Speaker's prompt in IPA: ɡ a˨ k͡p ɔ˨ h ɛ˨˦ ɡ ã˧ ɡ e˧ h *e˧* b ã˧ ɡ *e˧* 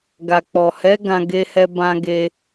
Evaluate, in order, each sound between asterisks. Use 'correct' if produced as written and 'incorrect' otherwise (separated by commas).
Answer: incorrect, correct